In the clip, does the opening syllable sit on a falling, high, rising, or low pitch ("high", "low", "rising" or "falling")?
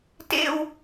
falling